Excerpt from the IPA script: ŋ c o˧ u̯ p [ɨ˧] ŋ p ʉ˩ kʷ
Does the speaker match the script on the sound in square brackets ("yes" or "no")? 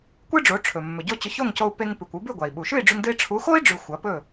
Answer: no